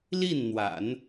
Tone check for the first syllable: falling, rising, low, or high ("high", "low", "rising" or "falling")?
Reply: falling